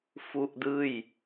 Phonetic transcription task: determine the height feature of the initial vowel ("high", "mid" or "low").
high